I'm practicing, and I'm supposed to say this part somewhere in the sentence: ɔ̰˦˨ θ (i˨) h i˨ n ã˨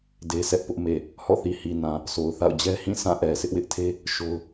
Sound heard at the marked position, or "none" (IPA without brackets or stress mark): i˨